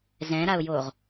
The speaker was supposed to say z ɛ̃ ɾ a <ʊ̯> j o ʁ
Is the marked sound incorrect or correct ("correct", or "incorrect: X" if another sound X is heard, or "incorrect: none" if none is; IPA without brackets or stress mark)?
correct